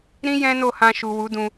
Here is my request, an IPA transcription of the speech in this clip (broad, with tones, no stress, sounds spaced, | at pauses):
ɾ ĩ˦ j ɛ̃˦ n o˦˨ h ã˧ ʃ u˨ w u˨˦ d ũ˧